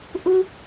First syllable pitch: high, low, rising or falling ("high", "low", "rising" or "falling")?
high